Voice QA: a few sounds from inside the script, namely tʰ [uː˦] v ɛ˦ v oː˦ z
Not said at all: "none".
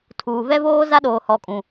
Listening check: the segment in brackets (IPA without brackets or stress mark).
uː˨